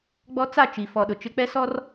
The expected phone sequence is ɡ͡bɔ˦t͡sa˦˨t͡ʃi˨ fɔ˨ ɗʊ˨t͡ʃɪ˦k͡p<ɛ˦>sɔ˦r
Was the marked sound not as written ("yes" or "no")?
no